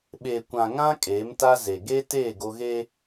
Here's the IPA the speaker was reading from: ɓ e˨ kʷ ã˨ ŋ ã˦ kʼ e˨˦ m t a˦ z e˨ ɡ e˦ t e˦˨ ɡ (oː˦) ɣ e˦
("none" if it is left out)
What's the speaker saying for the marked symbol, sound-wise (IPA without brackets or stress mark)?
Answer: o˦